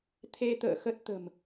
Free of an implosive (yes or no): yes